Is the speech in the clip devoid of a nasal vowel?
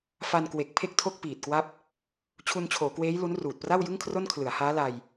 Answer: yes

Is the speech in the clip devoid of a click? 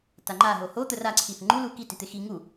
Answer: no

